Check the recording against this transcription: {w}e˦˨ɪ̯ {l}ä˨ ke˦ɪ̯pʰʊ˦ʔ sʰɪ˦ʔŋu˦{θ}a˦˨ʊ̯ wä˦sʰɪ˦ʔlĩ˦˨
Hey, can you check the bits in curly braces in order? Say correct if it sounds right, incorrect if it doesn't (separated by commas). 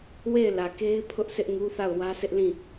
correct, correct, correct